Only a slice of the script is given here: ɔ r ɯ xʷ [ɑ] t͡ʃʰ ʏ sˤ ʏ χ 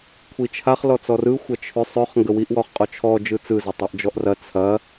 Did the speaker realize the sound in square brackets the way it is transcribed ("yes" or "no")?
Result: no